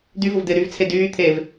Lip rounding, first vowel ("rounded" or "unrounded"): rounded